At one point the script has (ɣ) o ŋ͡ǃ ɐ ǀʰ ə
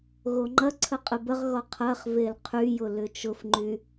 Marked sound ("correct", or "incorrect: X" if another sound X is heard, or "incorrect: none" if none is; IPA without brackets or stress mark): correct